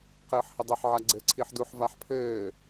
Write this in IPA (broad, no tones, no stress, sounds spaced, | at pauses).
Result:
q ɘː ħ h ə dˤ ɘ ħ ʕ a ɡ͡ǀ ɘ ǀʰ i ħ d u ħ v a ħ pʰ ɘː